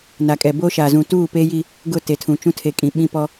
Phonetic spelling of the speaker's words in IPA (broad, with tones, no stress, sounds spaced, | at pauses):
n a˨ kʼ ɛ˨ b o˦ ʃ a˨ z ũ˨ t uː˦˨ p eː˦ j i˦ | ɡ ʊ˦˨ t e˨ tʰ ũ˨ t͡ʃ ũ˦ tʰ e˨ kʼ ĩ˨ ɓ ĩ˦ p ɔ˦